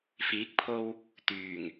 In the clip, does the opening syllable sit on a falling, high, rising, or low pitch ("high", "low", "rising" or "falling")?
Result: rising